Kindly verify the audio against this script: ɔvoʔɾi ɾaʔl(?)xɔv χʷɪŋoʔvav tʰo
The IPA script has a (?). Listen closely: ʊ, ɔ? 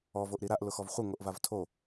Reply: ʊ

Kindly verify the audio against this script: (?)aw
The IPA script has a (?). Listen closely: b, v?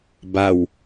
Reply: b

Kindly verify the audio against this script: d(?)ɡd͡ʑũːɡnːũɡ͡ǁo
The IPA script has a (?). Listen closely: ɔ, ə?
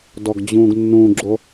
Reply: ɔ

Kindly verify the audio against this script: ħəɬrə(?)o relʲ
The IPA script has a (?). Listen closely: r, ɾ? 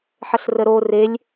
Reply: ɾ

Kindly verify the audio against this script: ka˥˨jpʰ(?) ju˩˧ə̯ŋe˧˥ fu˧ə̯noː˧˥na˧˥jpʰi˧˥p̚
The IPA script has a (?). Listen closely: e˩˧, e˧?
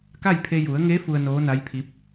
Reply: e˧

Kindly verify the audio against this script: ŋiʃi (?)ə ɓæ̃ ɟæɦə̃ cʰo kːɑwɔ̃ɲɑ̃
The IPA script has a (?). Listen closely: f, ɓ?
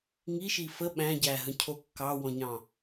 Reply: f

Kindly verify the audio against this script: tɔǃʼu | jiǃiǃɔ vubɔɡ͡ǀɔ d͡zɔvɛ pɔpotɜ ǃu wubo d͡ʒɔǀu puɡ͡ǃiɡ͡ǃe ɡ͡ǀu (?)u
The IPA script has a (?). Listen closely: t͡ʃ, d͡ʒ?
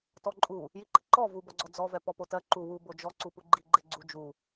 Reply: d͡ʒ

